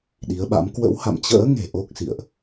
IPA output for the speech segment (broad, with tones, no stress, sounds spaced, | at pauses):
ɗ i˨˦ ə̯ ɓ a̰˧˥ m k w ə̰˧˥ w h a̰˧˨ m t͡ɕ ə̰ː˧˥ ŋ e̤˨˩ ʔ o˦˥ k̚ s ḭ˧˨ ə̯ ʔ